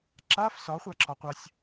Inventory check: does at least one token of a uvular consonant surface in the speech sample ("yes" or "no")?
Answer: yes